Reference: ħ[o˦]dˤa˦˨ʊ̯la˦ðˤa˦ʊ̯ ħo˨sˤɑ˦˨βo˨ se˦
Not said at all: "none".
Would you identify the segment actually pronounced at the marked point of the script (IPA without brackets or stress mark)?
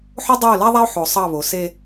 o˦